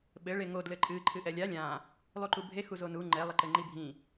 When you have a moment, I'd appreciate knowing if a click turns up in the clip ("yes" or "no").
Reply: yes